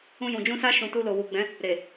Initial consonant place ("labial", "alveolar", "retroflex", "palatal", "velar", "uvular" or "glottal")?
palatal